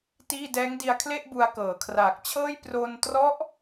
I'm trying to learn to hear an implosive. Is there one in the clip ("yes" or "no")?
no